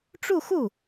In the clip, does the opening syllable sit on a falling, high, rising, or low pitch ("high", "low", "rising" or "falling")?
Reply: falling